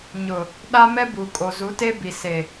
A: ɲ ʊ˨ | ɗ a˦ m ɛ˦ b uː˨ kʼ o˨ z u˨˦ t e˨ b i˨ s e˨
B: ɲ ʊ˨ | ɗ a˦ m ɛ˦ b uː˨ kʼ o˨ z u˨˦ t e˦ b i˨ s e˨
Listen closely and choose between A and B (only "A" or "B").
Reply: B